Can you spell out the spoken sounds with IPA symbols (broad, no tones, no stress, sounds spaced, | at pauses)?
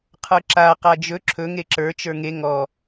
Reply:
qʰ ə˞ ǁ a q a d͡ʒ ɵ ǁʰ ɵ ŋ e ǁ ə˞ t͡ʃ ə˞ ŋ e ŋ ɔ